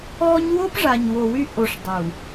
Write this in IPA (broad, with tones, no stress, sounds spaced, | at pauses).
ɔ˦ ɲ w o˦ p ʐ a˨ ɲ w o˨ w y˦ ʔ o˨ ʂ dˤ u˨